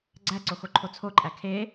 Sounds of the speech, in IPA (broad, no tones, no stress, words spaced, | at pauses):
ɡ͡ǀæǀoxoǃʰo t͡sʰoǃʼæ kʰe